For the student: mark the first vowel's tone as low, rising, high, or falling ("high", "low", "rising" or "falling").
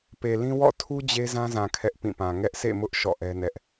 low